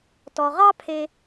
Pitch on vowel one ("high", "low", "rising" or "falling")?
low